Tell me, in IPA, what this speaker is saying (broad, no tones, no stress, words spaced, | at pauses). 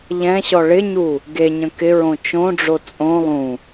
ʎɛ̃ɕɔ ɭɪɲu | ɡeɲə̃ kɪɹõ t͡ʃõɖ͡ʐo t͡sʼõ lˠũ